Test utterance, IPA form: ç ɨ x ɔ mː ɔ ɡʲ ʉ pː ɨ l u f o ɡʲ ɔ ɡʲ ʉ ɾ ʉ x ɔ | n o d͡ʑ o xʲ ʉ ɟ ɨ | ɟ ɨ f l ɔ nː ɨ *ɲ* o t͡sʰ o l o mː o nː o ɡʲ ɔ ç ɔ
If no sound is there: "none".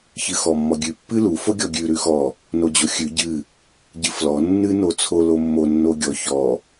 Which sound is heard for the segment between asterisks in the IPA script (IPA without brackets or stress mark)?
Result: n